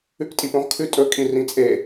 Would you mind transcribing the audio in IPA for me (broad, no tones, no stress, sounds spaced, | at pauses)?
ʉ k tʼ i p õ ʁ kʰ ʉ tʼ ɵ kʼ ĩ r ĩ t͡sʼ e